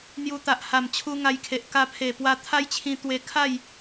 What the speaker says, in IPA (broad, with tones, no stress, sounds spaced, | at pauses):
n̪ j u˧ t̪ a˨ ʔ h a˨˩ m t͡ɕʰ u˧ ŋ a˧ j kʰ e˨ ʔ k a˧ pʰ e˨˩ p w a˧ t̪ʰ a˦ j t͡ɕʰ ĩ˧ t̪ w e˧ kʰ a˥˧ j